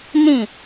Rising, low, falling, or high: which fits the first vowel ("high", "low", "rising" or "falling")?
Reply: falling